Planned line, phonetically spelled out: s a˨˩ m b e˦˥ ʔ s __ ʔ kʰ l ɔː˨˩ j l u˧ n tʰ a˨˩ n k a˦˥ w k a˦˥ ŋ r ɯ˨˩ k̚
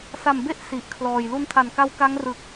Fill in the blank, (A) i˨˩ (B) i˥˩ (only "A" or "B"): A